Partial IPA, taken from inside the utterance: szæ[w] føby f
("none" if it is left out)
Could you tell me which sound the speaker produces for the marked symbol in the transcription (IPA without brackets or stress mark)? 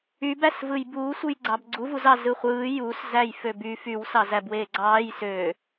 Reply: j